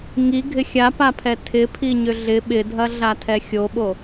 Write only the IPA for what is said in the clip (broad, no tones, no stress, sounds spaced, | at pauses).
ŋ i ɡʱ ɪ xʲ a p a pʰ ɛ tʰ ɪ pʰ i ɲ ʏ ɮ ɪ ɓ ɪ dʱ ɐ ɮ a tʰ ɛ xʲ o ɓ o